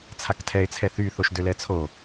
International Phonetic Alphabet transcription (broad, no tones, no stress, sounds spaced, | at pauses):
t͡sʰ a k tʰ ɛ ɪ̯ t͡sʰ ɛ θ y θ o ʃ d ø l ɛ t͡sʰ o